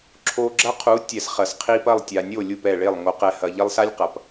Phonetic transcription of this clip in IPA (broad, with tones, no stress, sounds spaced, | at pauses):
ǁʰ o˧ ɡ͡ǁ ɐ˦ qʰ u˨˦ tʲ ɛ˨ s χ ɐ˨ s qʰ i˧ p ɐ˦˨ lˠ tʲ a˨ nʲ o˦˨ lʲ u˦˨ p ɛ˦˨ ɭ e˦˨ lˠ ŋ o˨ q ɛ˨ h ɐ˨ ʎ ɐ˦ lˠ s a˦ lʲ q ɐ˨ p